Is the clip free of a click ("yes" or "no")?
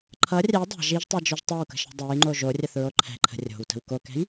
no